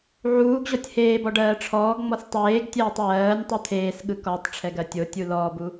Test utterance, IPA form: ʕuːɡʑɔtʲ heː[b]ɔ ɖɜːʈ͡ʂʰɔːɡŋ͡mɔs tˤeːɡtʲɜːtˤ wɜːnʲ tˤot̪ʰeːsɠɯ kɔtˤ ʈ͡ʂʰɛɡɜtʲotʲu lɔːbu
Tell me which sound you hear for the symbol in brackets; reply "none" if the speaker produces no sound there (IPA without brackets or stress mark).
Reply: b